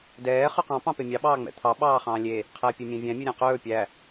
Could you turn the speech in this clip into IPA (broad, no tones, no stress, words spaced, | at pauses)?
dɛː χʉqɑ̃ pɑ̃pemʲɑ ɓɑːŋ͡mɛ̰t̪ʰɑ ɓɑːχɑ̃ːlʲe | qʰɛːpʲemʲæ̃vʲæ̃ mʲɵɾʲæ̃qɵː pʲæ